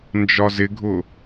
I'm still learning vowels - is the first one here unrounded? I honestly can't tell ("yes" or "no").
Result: no